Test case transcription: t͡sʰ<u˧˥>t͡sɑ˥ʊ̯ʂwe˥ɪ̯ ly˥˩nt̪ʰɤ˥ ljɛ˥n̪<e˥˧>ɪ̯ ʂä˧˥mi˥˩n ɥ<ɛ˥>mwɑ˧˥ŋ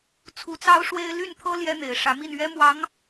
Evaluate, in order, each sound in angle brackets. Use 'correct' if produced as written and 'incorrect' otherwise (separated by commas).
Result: correct, incorrect, correct